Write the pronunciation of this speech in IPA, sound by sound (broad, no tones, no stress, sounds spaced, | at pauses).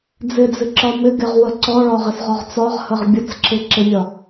d͡z ɪ d͡z ɪ ǁ ɒ m ɪ ɡ ɪ ʁ w ə ǀ ɔ ɭ ɒ ʁ ɪ s ʁ ɒ ʁ t͡s ɒ ʁ h ə ʁ bʲ ə t͡s ǁ ɪ ǁ ɪ mʲ ɒ